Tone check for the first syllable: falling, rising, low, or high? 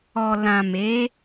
low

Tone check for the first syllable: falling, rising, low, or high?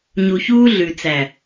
low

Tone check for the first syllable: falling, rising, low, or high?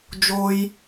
high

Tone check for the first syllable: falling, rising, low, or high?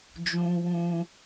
high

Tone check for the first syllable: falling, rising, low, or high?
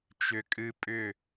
low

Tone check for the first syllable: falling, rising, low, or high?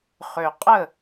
low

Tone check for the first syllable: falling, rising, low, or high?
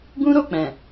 high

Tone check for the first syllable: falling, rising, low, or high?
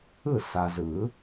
falling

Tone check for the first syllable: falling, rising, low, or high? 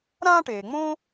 high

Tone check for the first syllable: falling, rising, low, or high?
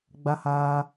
high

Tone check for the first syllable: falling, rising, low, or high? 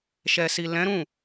low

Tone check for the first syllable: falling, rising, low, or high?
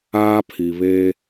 high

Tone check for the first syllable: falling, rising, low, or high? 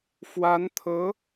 rising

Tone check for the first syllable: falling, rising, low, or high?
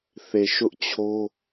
low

